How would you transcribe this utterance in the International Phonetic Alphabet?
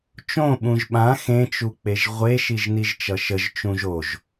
t͡ʃ õ ɓ ũ ʒ ɓ ã x ẽ t͡ʃ u k͡p e ʒ ʁʷ e ʃ i ʒ n i ʒ t͡ʃ ʌ ʃ ə ʒ t͡ʃ ũ ʒ o ʒ

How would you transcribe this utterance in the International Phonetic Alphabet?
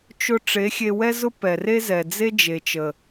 t͡ʃ ʊ˦ ʈ͡ʂ e˨˦ xʲ e˧ w ɛ˦ z ʊ˦ p ɛ˨ r e˦ z ɛ˨ d͡z e˦ d͡ʒ e˨ t͡ʃ ə˨

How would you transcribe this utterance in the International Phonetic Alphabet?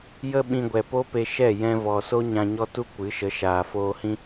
j ə˦ ɓ ĩ˧ ɡʷ ɛ˨ p o˦ p e˧ ʃ ɛ˦˨ j ɛ̃˧ v ɔ˨ s o˦ ɲ ã˧ ɲ ɔ˦ t u˦ kʷ ɨ˨˦ ʃ ə˨˦ ʃ aː˨ f oː˧ h ĩ˦

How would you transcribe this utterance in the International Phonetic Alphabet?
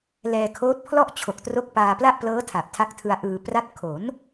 l ɛː˧ kʰ oː˦˥ t̚ pʰ l ɔ˥˩ ʔ t͡ɕʰ o˨˩ k̚ t r o˦˥ k̚ p aː˧ p l a˥˩ ʔ p l ɤː˦˥ tʰ a˨˩ p̚ tʰ a˦˥ k̚ tʰ ɯ˧ a̯ ʔ ɯː˧ p r a˥˩ t̚ kʰ o˩˦ n

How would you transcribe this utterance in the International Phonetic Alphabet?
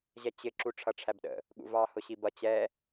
ʑ ɛ t͡ɕ ɪ ǁ u ʈ͡ʂʰ ʌ ʈ͡ʂʰ æ b ɗ ə̰ | ɠ ṵ v ɑ h ʊ ɕ i b ʌ t͡ɕ ɛ

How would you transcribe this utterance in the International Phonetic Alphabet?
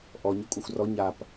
ʔ ɔ ɲ ɔ kʷʼ a xʷ r ɔ ɲ a p

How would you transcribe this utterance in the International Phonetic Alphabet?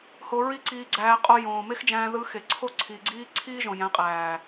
h o˧ ɹ i˦ ǀ iː˧ ɡ͡ǀ æː˧ qʼ o˧ j õː˨ m e˦ x d͡ʒ æ̃ː˧ ð ɯ˧ x e˨ ǀʰ o˦˨ ǀʰ iː˨ ɡ͡ǀ iː˧ ǀʰ iː˦ ʒ õ˨ j æ̃˨˦ qʼ æː˨

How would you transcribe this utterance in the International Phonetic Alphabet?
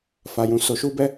f a˧ j ũ˧ s o˧ ʃ u˦ b ɛ˦

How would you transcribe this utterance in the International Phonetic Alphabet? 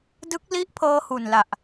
d ɯ˦˥ k̚ l i˦˥ ʔ pʰ ɤː˧ h u˨˩ n l a˨˩ ʔ

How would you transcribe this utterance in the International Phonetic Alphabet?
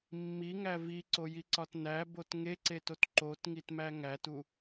mː i ŋ æ v i ǀ o j i ǀ ɒ t n æ b o t ŋ e ǀ e t o t ǃ o t ŋ i t m æ ŋ æ t u

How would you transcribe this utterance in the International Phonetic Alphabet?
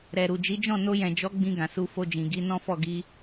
ɾ ɛ˨ ɾ u˨ d͡ʒ i˨˦ d͡ʒ ɔ̃˦˨ n o˧ j ɛ̃˨ d͡ʒ ɔ˨˦ ɡ͡b ĩ˧ ɡ ã˨ s u˧ f o˧ d͡ʒ ĩ˨ ɡ i˨˦ n ɔ̃˦ f ɔ˦˨ ɡ i˧

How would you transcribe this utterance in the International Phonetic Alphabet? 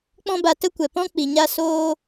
k͡p ɔ̃˦ b a˧ t ə˦ kʷ ɛ˨ p ɔ̃˦ k͡p i˨ ɲ a˦ s oː˦

